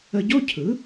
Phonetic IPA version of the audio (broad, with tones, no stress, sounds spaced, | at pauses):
ə˧ ɟ o˥ cʰ ɯ˩˥